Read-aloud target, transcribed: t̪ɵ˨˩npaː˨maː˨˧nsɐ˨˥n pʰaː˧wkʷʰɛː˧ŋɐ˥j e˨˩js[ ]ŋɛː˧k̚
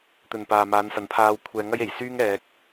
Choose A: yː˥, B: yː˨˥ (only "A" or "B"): A